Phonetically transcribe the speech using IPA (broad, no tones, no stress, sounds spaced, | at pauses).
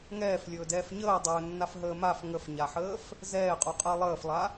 ŋ ɛː f lʲ ɵː d ɛː f ɲ əː dˤ ɵː nː a f ɦ əː m a f ŋ ə f ɲ a ħ əː f | z ɛː qʼ u qʼ əː lˠ əː f lˠ a